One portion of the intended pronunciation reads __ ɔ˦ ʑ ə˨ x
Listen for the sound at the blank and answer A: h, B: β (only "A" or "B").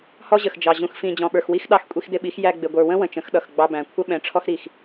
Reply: A